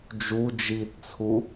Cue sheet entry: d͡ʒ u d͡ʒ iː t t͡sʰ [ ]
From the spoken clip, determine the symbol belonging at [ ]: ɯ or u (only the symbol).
u